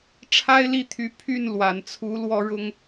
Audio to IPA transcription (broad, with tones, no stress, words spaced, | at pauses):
ʈ͡ʂʰa˥ɪ̯ li˥˩t̪ʰy˧˥ pʰy˥˩n lwa˨˩nt͡sʰu˧˥ lwɔ˥ɻʊ˥ŋ